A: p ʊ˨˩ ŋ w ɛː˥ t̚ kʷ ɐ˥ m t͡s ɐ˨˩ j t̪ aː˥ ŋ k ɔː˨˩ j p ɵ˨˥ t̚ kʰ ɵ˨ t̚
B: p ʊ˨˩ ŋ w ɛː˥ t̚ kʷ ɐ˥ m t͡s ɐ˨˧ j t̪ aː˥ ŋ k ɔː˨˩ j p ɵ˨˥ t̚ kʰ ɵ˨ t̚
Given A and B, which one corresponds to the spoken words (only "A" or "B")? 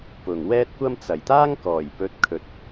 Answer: A